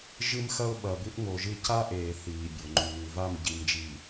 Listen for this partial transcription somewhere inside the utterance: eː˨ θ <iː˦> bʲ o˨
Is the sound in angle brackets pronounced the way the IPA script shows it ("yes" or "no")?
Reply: no